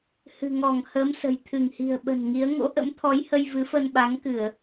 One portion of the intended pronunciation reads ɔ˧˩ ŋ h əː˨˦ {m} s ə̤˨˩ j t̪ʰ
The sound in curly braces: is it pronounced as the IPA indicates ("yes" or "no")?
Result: yes